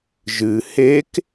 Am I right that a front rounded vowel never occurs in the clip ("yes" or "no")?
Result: yes